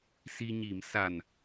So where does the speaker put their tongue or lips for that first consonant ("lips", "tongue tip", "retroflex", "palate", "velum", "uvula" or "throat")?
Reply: tongue tip